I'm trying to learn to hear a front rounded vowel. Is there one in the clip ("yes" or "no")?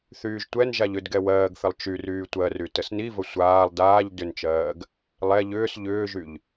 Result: yes